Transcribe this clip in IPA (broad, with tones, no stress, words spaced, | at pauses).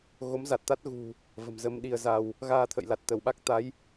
ɣo˨˦mza˨˩t̚t̪a˦˥t̚ ɣṳ˨˩ | və̤˨˩mzə˧mɗi˧ə̯za˧w | ɣaː˧t̪ʰə̰˧˨jla˨˩t̚ t̪ə˧˩wɓa˦˥k̚ t̪a˨˦j